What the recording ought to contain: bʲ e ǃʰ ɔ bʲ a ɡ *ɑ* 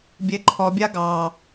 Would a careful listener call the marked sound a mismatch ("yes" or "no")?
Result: no